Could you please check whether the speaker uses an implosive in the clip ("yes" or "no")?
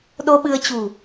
yes